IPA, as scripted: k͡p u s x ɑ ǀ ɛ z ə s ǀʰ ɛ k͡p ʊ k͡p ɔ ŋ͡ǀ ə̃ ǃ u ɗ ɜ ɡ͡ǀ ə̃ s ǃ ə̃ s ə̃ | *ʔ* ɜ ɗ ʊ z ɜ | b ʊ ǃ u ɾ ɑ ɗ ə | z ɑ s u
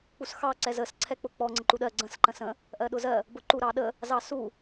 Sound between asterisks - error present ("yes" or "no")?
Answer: no